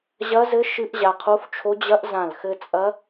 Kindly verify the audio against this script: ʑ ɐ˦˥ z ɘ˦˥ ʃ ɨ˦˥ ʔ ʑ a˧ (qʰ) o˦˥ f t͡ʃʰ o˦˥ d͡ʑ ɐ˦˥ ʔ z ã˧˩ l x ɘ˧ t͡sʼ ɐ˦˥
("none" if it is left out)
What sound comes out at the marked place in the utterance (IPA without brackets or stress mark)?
qʰ